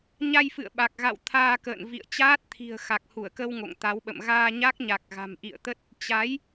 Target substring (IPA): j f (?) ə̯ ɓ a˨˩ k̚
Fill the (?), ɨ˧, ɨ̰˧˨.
ɨ̰˧˨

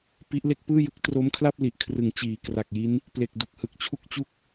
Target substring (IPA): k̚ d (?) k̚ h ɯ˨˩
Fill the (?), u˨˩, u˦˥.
u˨˩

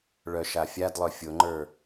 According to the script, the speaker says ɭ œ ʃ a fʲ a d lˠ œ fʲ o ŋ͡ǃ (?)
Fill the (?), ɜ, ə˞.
ə˞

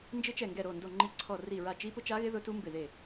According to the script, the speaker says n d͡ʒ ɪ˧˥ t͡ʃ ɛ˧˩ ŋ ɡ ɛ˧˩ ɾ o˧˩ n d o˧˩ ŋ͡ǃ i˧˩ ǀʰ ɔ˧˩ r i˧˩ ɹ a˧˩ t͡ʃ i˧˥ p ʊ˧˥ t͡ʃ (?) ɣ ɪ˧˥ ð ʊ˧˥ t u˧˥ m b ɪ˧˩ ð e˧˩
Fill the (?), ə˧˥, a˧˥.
a˧˥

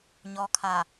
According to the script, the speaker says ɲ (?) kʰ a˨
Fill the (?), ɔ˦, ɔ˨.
ɔ˨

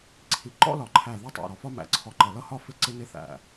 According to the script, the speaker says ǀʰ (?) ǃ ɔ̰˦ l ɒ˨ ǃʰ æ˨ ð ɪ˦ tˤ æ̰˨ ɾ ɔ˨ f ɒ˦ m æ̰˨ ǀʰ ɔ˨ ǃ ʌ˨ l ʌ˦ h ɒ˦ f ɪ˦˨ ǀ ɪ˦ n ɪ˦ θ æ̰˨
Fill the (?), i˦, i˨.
i˨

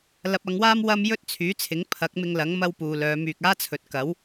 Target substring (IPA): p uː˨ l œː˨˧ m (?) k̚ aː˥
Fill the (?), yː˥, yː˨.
yː˨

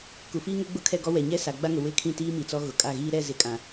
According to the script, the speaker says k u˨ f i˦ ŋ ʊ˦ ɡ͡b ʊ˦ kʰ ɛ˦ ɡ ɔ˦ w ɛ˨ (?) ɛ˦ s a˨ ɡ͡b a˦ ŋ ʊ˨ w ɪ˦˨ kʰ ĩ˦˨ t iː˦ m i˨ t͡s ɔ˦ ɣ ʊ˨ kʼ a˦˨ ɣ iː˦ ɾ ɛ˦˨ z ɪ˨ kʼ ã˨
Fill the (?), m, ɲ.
ɲ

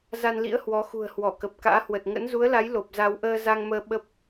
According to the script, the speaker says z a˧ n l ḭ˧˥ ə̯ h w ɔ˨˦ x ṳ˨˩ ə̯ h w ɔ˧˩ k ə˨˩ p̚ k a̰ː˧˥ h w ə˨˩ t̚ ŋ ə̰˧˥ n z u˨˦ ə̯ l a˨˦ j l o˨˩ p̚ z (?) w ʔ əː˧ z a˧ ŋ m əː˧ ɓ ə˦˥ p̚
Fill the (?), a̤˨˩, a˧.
a˧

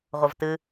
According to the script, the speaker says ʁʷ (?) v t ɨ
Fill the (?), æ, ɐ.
ɐ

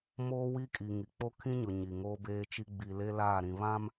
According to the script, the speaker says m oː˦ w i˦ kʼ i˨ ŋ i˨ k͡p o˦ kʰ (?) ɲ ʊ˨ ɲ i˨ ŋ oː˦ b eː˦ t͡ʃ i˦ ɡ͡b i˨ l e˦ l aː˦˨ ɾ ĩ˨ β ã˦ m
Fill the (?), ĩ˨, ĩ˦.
ĩ˦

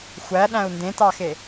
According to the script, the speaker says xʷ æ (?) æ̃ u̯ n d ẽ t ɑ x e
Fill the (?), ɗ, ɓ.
ɗ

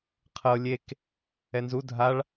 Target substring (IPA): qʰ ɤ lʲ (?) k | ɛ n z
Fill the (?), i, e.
e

